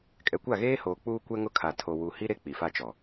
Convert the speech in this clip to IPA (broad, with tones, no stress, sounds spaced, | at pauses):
kʼ ɛ˨ kʷ a˦˨ ɣ eː˦ h oː˨ k͡p uː˦ kʷ ɛ˦ ŋ ʊ˦ kʰ a˨ tʰ o˨ w u˨ h i˦ ɾ e˦ k͡p i˨ f a˦ t͡ʃ ɔ˨